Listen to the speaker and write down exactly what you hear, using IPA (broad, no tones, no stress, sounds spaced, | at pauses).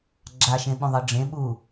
ɡ͡ǁ a ʃ ẽ ɓ ũ ðˤ ɤ ɖ͡ʐ ẽ ɓ u